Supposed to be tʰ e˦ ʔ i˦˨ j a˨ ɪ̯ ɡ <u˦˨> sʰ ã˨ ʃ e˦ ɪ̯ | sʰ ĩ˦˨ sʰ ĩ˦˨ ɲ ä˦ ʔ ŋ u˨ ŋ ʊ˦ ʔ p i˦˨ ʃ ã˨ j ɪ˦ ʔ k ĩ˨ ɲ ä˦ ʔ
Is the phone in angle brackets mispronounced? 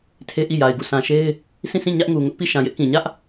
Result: no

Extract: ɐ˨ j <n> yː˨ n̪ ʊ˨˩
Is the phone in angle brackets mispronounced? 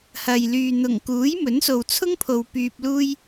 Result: yes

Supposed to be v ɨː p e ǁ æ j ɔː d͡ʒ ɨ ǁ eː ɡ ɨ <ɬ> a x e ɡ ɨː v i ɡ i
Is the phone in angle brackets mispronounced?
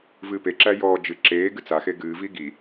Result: yes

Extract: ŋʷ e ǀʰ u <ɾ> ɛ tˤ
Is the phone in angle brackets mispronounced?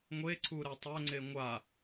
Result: no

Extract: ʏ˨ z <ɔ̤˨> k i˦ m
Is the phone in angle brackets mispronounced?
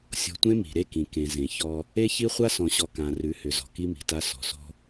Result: no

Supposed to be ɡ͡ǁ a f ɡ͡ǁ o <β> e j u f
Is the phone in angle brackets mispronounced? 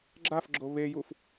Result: no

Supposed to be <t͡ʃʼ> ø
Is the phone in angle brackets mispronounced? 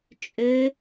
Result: no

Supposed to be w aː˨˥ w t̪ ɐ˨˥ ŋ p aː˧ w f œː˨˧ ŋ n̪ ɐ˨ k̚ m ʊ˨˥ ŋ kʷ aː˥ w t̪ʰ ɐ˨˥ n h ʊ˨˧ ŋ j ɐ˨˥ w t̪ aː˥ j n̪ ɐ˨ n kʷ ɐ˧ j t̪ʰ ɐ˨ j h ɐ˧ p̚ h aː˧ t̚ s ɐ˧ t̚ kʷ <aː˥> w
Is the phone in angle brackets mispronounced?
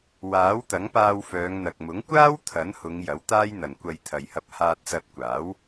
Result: yes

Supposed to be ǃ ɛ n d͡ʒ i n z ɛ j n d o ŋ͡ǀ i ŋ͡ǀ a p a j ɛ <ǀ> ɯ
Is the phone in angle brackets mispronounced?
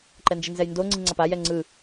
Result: yes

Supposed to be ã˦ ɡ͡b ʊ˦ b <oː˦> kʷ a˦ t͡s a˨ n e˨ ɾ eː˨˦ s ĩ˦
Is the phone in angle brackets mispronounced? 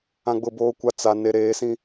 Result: no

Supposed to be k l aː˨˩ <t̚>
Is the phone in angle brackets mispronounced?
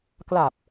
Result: yes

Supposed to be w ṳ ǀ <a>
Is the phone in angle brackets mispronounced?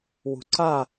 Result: no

